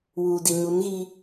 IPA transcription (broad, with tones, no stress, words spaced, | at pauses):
wuː˨di˨ ɲu˨˦nɣi˦